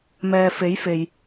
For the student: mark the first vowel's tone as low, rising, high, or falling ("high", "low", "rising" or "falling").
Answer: low